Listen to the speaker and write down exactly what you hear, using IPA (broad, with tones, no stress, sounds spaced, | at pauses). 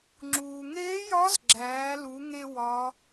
ŋ͡ǁ uː˩ ŋ eː˧˥ j ɒ˧˥ z ɡ͡ǁ æː˩˧ l u˩˧ ŋ e˥ w ɒ˧˥